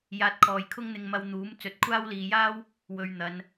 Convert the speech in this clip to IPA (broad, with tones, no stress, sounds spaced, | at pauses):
j aː˧ t̚ kʰ ɔː˨ j kʰ ʊ˥ ŋ n̪ ɪ˧ ŋ m ɐ˧ w n̪ uː˨˥ m t͡s ɵ˨˥ t̚ kʷʰ aː˥ w l iː˨ j aː˥ w | w ɵ˧ ɥ n̪ ɐ˨˧ n